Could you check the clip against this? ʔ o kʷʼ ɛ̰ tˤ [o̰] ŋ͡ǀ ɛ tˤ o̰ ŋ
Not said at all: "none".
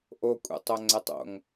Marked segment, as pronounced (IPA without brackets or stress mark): o